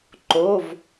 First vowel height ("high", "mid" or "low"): mid